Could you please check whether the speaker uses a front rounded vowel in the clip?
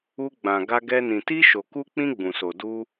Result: no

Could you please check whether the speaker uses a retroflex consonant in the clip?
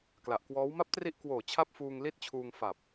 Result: no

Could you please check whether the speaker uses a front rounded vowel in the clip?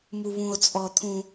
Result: no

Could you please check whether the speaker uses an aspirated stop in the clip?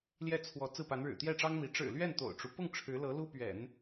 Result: yes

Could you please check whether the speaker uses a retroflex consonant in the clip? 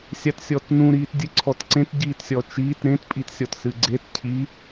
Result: no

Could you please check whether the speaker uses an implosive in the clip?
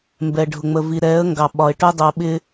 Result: yes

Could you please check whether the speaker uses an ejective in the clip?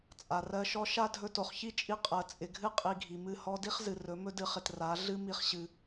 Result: yes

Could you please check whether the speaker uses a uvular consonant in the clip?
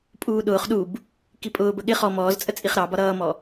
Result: yes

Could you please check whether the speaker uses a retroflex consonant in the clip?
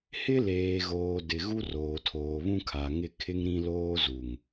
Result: no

